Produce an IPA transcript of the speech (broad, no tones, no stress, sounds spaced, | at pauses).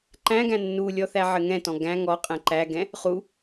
ǃ æ̃ ɡ æ̃ nː u lʲ ɔ θ æ ʕ ɘ ŋ ɛ̃ t ɔ̃ ɡ æ̃ ŋ ɔ qʼ ɛ̃ ǃ æ ɡ ɛ̃ | χ u